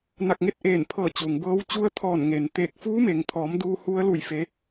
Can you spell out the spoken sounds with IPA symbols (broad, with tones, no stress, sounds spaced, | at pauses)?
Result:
n a˧˩ k̚ ŋ e˥˨ t̚ ʔ eː˧˩ n pʰ ɤː˧˩ t͡ɕ u˩ ŋ b ɤː˧˥ w t͡ɕ u˧˥ ə̯ t̪ʰ ɔː˧˩ n ŋ eː˩ n t̪ eː˧˩ k̚ f uː˧˥ m e˩ ŋ t̪ʰ ɔː˩˧ m d uː˧ h u˧˥ ə̯ l u˧˩ j f e˩˧